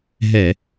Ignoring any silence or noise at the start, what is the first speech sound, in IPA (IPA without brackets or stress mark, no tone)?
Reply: ɦ